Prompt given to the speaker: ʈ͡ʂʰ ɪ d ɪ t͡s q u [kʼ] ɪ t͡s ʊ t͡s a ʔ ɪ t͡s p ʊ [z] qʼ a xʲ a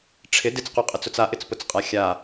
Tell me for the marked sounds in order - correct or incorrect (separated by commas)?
incorrect, incorrect